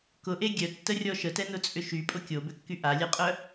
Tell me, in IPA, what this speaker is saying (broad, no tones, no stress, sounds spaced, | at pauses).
k ʊ ʔ e ɡʲ œ tː ə rʲ ɔ ʃ ə t ɛ n ʊ t͡sʼ ʏ ʃ y pʼ ʊ kʲ o b ʏ kː y ʔ a lʲ ɛ qʼ œ